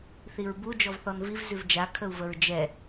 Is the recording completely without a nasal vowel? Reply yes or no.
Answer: yes